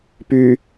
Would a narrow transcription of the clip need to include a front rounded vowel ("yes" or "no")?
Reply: yes